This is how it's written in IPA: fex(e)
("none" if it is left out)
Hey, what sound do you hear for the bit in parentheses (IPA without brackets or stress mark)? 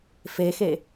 e